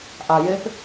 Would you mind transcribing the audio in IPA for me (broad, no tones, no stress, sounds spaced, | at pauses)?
ʔ a j e p